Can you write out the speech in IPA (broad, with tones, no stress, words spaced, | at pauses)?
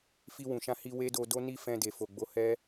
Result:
fi˧wũ˨ʃã˧hi˧ we˦do˧do˦ni˦ fɛ̃˧de˨fo˨ɡ͡bo˨˦ hɛ˦